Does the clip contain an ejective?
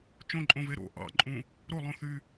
yes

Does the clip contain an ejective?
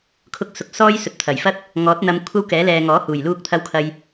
no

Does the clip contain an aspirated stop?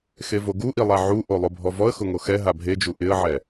no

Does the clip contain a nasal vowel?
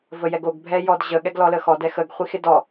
no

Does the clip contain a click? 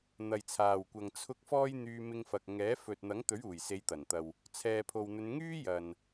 no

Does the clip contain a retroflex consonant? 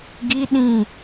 no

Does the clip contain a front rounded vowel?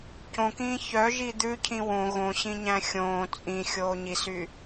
yes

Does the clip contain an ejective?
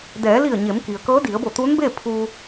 no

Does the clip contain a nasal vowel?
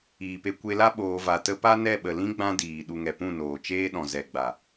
yes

